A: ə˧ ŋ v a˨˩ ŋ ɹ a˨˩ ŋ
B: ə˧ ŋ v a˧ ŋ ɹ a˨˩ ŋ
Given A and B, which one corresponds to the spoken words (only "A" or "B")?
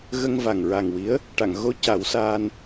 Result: A